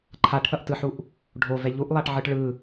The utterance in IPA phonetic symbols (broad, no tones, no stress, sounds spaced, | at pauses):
ǃʰ a ʈ θ ʌ ʔ t ɯ ħ u ʔ | ɖʱ o v ɛ ʎ u ʔ lˠ a ʈ ʕ ɯ ʈ ɭ ɯ